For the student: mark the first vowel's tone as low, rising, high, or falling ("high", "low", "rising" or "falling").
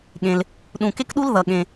low